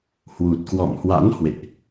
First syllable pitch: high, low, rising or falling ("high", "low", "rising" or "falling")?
low